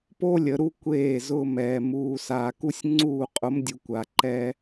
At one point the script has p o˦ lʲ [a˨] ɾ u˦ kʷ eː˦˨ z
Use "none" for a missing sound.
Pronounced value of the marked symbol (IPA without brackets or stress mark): ə˨